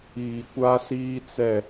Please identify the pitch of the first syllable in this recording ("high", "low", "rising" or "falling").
low